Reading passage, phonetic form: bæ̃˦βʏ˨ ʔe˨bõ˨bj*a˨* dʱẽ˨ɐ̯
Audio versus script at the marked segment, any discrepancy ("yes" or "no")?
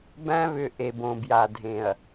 no